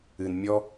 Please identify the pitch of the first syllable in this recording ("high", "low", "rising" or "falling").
low